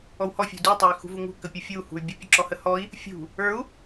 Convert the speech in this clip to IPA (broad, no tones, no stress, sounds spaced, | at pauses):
ɔ w h ɔ fʲ ṳ d u tˤ ə˞ y̯ x ṳ v u ŋ ṳ k ə pʲ u fʲ u h ṳ y̯ bʲ ə pʲ ə̤ ǁ ɔ h ə h ɔ i̯ | fʲ ṳ | ə˞ u̯